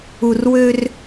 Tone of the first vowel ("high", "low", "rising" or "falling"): low